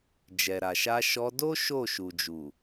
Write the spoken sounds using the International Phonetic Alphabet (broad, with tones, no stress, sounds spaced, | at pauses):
d͡ʒ ɛ˨ ɾ a˨ ʃ a˧ ʃ ɔ˧ d o˦ ʃ o˦˨ ʃ u˨ d͡ʒ u˨